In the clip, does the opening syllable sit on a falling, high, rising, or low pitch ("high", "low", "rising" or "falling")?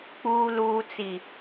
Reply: low